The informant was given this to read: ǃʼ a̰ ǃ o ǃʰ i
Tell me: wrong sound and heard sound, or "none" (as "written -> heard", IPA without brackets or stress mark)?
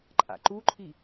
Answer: o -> u